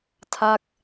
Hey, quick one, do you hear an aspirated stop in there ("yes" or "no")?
yes